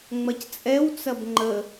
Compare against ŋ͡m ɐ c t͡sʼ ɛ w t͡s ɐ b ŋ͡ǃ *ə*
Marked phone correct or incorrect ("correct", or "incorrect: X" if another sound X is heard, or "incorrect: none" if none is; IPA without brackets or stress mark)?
correct